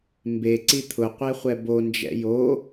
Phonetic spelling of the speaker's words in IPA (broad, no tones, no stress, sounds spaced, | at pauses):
m b e ǀ i t̪ʰ ʊ qʷ e χʷ ɛ b o n d͡ʒ ɛ̰ j o